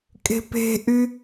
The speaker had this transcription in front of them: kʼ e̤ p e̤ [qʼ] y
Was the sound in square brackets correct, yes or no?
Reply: no